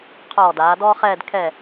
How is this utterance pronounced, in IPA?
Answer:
qʰɔː˧˩ daː˩˧dɔː˥χɛː˥˧d kʰɛ˧˩

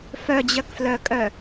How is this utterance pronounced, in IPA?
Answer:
fœd͡ʑœkflœkʼœ

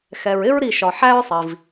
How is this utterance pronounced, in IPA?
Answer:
xɛ˩ɹɪ˦ɹɾi˧˩ʃɒ˩ ħæ˦ɹsˤi˩v

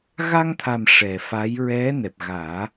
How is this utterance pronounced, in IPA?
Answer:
ɣa˧ŋt̪ʰa˨˩m ʂɛ˨˩ fa˧˥j ɹɛ˧˥ nɛ˨˩p̚ɣaː˨˩˦

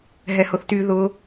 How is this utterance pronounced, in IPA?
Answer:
ɦɛhʊθty ðʊ

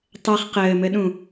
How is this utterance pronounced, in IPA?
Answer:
tˤɛχ qɘːmɘɗũ

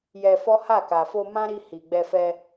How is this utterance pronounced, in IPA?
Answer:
jɛ˧fɔ˦ha˦˨ka˨ fo˧mã˦ɾi˧ hi˨ɡ͡bɛ˧fɛ˧

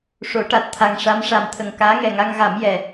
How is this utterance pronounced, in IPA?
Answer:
ʂo˨˩˦ʈa˨˩t̚ t̪ʰa˨˩ŋ ʂa˧˥mʂa˨˩mt̪ʰə˨˩ŋ kaː˧˥ŋɛ˨˩ŋa˧ŋɣa˨˩˦m jɛ˨˩

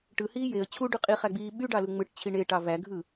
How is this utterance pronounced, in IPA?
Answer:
ʈɯhiː jeə̯ t͡ɕʰuɖy qʼiχæɡ͡biː ɓyɖɑlu ŋ͡mɯʈt͡ɕʰi ɳeʈɑ væɡʱɯ

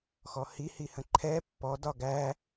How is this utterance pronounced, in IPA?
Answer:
xɔhihihə̃ ǃʰɛ pːɔ dɒɡæ

